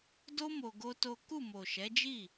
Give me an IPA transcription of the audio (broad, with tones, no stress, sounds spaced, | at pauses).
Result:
d o˦ m o˧ ɡ o˦ t o˦ k u˦˨ m o˨ ʃ ɛ˨˦ d͡ʒ i˦˨